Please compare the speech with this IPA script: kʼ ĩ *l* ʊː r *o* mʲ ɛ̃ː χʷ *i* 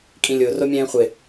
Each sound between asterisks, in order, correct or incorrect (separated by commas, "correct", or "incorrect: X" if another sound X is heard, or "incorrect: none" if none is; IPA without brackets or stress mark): incorrect: lʲ, correct, incorrect: ɪ